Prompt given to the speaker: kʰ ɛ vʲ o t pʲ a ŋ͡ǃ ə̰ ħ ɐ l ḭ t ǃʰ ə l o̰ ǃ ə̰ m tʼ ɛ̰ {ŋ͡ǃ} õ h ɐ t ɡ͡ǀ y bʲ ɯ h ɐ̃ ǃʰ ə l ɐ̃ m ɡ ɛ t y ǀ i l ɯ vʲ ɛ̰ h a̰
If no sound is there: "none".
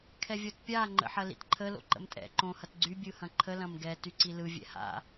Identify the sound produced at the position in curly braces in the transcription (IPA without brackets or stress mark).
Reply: ǃ